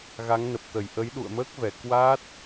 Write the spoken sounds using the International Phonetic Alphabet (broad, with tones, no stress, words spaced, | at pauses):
ɣa˨˦ŋnə˨˩p̚t̪ə˧˩j ʔə˨˦jɗṵ˧˨ə̯məː˦˥k̚vɛ˧˩ kwa˦˥t̚